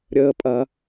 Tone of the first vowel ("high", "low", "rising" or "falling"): low